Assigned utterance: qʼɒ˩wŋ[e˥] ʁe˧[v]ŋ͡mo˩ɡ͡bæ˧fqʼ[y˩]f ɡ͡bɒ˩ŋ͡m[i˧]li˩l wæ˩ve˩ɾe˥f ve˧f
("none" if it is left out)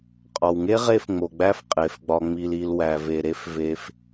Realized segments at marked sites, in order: e˥, f, e˩, i˩

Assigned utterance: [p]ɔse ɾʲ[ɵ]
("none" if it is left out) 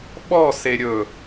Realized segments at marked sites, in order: ɓ, ɵ

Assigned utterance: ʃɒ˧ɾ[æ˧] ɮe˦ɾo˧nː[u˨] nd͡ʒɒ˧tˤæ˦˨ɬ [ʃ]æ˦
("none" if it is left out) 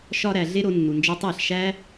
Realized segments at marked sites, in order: æ˨, u˨, ʃ

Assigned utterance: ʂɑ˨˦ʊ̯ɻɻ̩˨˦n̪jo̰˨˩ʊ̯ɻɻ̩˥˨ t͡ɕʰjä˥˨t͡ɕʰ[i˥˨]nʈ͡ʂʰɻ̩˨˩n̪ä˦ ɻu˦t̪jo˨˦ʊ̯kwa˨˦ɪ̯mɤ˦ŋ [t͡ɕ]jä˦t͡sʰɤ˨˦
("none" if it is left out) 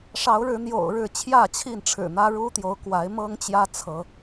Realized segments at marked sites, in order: i˥˨, t͡ɕ

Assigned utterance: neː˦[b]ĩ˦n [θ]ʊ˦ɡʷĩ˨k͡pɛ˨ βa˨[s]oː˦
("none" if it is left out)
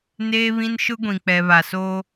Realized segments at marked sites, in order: β, ʃ, s

